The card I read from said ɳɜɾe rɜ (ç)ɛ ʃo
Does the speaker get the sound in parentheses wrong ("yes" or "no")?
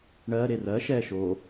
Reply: yes